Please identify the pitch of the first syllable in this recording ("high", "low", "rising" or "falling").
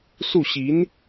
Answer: falling